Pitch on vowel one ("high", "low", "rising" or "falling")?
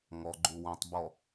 low